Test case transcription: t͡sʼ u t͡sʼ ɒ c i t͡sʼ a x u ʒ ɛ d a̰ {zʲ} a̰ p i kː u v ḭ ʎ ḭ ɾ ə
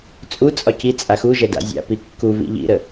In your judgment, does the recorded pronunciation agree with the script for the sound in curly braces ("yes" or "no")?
yes